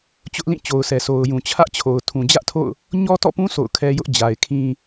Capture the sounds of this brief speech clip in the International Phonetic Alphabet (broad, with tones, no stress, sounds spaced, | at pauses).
t͡ɕ ʊ˦ ʔ l ĩ˦˨ t͡ɕ o˨ ʊ̯ s ɛ˨ sʰ o˨ ʊ̯ j ũ˨ t͡ɕʰ ä˦ ʔ t͡ɕʰ o˨ ʊ̯ tʰ ũ˨ d͡ʑ ä˦ ʔ tʰ o̰˦˨ ʊ̯ | ɲ ɔ˦ t ɔ̰˦˨ p ũ˦ sʰ o̰˦˨ ʊ̯ kʰ ɛ˦ j ʊ˦ ʔ d͡ʑ a˨ ɪ̯ kʰ ĩ˦